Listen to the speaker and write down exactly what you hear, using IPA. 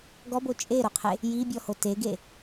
ɡ ɔ b o t͡ʃʼ e ɾ o qʰ e | j i bʲ ɔ h o t e ɡ e

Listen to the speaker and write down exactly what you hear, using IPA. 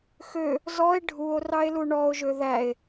x ø | z ɔ e̯ ɖʱ u o̯ r ɑ e̯ l u ɳ ɔ o̯ ʒ ø ð æ e̯

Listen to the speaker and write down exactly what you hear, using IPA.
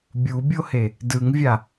bʲ u bʲ o h e | d ɯ ŋ vʲ a

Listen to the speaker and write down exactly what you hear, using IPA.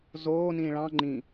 z oː n ĩː ɭ ɑ̃ ŋ͡ǃ ĩ

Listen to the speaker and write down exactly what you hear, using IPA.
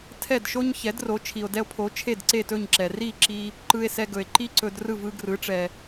tʰ ɛ˥˩ d ʃ o˥ ɲ ç ɛ˩˥ d r o˩˥ t͡ʃʰ i˩ o̯ d ɛ˧ o̯ pʰ o˩˥ t͡ʃʰ e˥˩ d ǀ e˥˩ t ɵ˥˩ ɲ ǁ ɛ˩ r i˥˩ ǁ i˧ | ǃ ɯ˧ e̯ s ɛ˧ ɡ ɵ˩ e̯ ǃ i˥ ǀ ɵ˧ d r ɯ˥˩ v ɯ˧ ɡ r ɯ˩˥ ʈ͡ʂ ɛ˩

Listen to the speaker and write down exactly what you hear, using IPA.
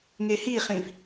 ŋ e h i χ ĩ v

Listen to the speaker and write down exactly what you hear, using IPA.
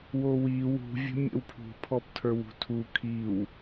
w o w i w ṳ vʲ ə̤ mʲ ə̰ w pʰ ṳ pʰ ɔ p tʰ ə˞ w ṳ tʰ u kʰ i w

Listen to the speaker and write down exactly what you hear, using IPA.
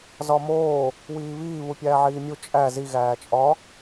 z ɒ m oː | w iː β iː β u pʲ æː ʕ iː mʲ u t͡ʃʼ æ z i ɣ æː t͡ʃʼ ɒ

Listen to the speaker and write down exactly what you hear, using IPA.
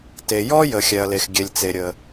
t e˩ j ɔ˥ j ə˩ xʲ ɛ˩ ɐ̯ l e˩ x ɡʲ e˩ lʲ t͡s e˩ ɾʲ ə˩

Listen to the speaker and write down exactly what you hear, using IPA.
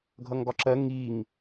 ɡʱ ʌ ŋ ɡ ɒ ǁ ɜ ŋ i ŋ

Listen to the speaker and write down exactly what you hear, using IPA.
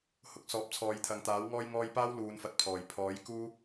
h ʊ˧ k̚ s ɔː˨˥ p̚ t͡sʰ ɔː˨˧ j t̪ʰ ɐ˨˧ ŋ t̪ aː˨˥ w ŋ ɔː˥ j ŋ ɔː˥ j p aː˥ w l uː˨˧ n f ɐ˨˥ t̚ pʰ ɔː˨ j pʰ ɔː˨˥ j k uː˥

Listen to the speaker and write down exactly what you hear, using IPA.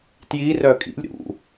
t j i r œ kʼ ḭ lʲ ɾ ṵ

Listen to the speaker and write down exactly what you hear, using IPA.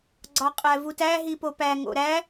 ɡ͡ǀ ɒ qʼ æ v u t æ ɦ i p o p æ ŋ o̰ ɾ æ

